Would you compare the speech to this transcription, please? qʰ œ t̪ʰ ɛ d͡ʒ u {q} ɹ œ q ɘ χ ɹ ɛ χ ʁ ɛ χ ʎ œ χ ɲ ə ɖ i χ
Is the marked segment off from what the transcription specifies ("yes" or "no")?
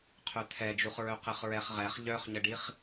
yes